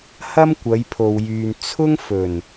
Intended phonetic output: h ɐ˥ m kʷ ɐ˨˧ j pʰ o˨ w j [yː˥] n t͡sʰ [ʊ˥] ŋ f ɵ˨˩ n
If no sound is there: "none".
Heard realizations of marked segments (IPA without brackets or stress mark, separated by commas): yː˨, ʊ˥